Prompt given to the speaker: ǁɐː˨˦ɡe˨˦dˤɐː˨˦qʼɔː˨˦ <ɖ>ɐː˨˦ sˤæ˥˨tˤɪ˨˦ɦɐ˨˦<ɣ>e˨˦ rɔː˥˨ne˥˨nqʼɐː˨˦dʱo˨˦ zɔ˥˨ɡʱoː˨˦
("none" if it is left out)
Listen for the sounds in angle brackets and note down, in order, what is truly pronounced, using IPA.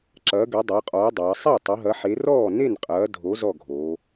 dˤ, ħ

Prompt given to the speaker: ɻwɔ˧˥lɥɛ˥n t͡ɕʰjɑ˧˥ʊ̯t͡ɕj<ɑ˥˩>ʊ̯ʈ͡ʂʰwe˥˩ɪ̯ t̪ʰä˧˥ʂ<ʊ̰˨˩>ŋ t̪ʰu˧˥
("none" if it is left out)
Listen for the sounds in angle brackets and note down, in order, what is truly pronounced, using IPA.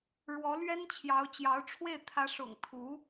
ɑ˧˥, ʊ̰˨˩

